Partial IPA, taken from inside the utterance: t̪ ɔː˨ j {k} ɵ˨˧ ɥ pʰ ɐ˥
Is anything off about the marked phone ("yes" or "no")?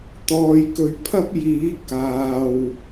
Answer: no